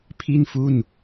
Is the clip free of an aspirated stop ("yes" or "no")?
no